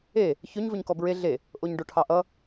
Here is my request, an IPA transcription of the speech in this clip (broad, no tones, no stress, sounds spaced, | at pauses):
e | ç ɵ ɲ v ɵ ɲ k ɔ b ɹ e ɮ e | ʔ o ɲ ɖ o ʈʰ ɑ ʔ ʌ